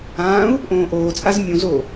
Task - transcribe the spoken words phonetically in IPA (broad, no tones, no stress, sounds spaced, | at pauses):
ãː u̯ | ʔ õː ʔ oː t͡sʼ a z mʲ ũ z oː